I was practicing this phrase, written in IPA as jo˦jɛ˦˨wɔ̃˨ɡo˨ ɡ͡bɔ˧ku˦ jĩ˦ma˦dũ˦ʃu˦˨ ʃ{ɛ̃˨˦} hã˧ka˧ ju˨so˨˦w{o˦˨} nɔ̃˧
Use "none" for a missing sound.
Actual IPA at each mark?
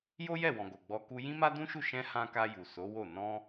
ɛ̃˧, o˦˨

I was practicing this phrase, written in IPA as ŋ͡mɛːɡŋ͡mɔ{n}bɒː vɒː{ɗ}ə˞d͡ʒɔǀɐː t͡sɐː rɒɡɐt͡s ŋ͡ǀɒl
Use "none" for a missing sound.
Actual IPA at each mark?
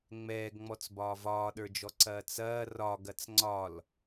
t͡s, ɗ

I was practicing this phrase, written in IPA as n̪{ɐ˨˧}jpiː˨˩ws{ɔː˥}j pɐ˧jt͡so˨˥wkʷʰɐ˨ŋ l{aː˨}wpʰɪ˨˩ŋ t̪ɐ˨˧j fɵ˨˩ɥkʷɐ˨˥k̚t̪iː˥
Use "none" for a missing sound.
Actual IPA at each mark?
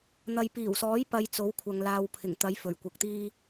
ɐ˨, ɔː˨˥, aː˨

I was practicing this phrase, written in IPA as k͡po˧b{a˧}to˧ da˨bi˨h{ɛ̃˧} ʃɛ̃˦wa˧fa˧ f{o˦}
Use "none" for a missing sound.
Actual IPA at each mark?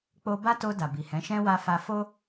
a˦, ɛ̃˨˦, o˦

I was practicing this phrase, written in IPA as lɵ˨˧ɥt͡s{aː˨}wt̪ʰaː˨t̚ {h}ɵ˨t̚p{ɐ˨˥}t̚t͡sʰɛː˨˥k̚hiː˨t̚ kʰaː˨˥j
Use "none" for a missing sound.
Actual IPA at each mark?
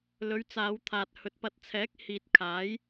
aː˨˧, h, ɐ˨˥

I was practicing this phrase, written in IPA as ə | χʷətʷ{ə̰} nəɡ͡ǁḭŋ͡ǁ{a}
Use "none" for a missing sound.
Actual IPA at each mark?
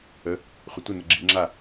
ə, a

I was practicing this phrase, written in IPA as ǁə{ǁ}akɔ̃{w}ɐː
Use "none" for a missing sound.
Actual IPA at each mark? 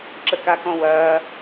k, w

